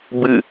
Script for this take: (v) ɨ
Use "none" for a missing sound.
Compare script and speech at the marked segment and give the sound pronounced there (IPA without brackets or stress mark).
b